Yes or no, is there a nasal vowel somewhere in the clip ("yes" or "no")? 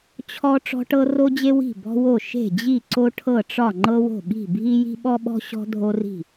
no